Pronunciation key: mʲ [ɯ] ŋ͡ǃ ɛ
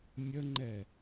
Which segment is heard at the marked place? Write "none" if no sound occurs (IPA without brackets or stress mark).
ə